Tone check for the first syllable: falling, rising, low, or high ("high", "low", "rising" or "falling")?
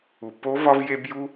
low